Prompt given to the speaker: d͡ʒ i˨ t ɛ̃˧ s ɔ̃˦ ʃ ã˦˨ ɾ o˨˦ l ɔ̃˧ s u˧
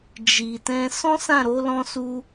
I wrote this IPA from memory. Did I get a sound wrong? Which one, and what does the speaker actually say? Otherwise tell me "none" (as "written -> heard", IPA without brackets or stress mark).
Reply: ʃ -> s